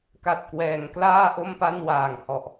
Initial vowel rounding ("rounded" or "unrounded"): unrounded